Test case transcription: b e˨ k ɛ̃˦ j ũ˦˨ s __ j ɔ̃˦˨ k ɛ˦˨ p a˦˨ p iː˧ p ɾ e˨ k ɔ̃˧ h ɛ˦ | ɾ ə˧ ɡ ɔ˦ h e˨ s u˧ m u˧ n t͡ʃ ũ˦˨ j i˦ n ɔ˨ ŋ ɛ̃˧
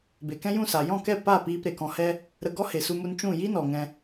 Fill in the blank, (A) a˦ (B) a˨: B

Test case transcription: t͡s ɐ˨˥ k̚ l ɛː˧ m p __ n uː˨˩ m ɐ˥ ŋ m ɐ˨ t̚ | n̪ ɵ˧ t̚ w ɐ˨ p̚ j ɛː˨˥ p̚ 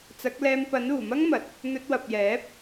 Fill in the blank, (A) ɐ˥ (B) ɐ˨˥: B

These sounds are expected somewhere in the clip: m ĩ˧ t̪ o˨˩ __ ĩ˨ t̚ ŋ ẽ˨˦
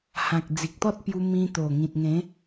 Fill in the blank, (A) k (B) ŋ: B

